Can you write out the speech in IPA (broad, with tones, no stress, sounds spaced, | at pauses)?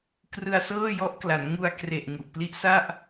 k r ɯ˧ a̯ s ɤː˥˩ j ɔ˦˥ ʔ k l a˩˦ n ŋ u˧ a̯ k r e˨˩ ʔ ŋ u˨˩ ʔ p l i˦˥ ʔ s a˥˩ ʔ